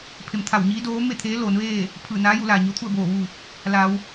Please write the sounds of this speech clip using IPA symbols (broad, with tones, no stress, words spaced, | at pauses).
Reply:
pʰe˩˧mt̪ʰa˧˩wɲiː˧˥ doː˧˥me˥˨t̪ʰeː˧˥ loː˩˧nʋeː˥˨ | pʰɯː˧˩naː˧˥ju˩˧ laː˩ɲo˧˥t̪ʰu˥˨ə̯boː˧˩ ʋu˧˩ | la˩˧w